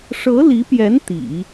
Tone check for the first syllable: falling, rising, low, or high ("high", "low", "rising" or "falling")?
rising